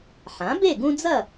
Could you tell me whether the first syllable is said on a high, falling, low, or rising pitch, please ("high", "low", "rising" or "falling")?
rising